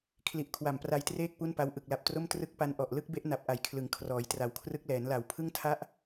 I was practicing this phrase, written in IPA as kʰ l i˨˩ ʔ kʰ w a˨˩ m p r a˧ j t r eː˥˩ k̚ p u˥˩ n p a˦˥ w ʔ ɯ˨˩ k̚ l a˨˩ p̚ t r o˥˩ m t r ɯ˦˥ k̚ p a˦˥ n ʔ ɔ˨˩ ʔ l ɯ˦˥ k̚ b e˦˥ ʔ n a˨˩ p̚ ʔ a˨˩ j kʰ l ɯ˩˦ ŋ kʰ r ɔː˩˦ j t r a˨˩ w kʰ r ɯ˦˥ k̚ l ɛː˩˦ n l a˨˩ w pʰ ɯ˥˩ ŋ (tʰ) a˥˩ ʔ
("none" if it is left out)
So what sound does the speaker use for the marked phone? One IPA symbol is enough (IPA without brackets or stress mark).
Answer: tʰ